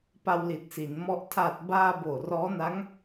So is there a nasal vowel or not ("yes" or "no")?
no